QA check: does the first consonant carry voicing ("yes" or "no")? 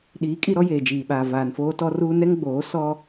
yes